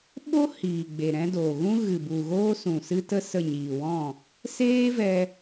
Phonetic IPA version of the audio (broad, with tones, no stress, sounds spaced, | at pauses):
ɓ o˦ h iː˨ ɡ͡b e˨ ɾ ɛ̃˧ d oː˨ ɣ ũ˦ ɣ ɨ˨ b u˨ ɣ oː˧ s ũ˨ s ɨ˦ t ə˦ s ə˦˨ ɲ iː˨ w ɔ̃˦˨ | s eː˦ v ɛ˧